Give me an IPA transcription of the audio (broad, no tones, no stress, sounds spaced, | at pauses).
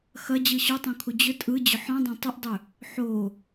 x ɐ d͡ʑ ɯ ɕ o tˤ õ kʰ u d͡ʑ ʏ tʼ ɯ d͡ʑ ʏ ħ ɔ̃ dˤ ɐ̃ tˤ ʉ ʔ dˤ ʏ | ħ o